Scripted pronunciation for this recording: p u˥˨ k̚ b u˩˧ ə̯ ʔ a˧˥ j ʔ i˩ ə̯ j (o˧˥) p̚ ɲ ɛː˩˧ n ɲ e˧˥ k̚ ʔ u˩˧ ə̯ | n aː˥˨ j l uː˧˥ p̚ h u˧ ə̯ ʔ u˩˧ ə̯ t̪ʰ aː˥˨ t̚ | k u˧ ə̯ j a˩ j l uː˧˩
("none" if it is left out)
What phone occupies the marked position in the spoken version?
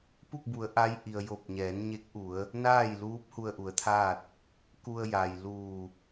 o˧˩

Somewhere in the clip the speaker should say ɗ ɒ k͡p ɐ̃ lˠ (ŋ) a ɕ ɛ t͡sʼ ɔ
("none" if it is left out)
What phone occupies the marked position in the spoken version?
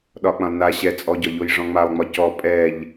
n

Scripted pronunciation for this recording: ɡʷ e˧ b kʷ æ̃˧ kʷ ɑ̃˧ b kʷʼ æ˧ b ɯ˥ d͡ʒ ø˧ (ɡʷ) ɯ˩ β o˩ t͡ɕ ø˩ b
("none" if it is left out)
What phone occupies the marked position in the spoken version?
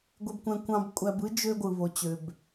ɡʷ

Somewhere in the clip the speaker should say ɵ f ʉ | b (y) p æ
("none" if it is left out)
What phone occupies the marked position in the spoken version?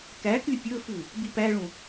i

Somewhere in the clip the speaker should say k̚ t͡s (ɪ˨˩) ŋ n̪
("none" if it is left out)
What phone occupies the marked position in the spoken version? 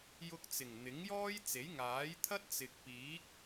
ɪ˨˩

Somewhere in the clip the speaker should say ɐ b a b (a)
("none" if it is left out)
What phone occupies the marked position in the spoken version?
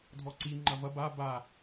a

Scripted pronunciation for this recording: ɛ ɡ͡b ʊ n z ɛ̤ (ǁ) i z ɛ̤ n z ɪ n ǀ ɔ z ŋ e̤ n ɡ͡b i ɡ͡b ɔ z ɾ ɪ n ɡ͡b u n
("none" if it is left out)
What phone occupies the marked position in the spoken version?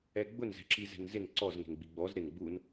ǁ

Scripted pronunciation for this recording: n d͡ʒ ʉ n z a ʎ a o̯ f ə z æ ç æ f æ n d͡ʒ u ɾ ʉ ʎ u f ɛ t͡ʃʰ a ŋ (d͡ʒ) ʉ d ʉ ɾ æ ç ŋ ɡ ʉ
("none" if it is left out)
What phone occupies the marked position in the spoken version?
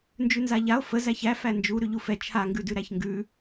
ɡ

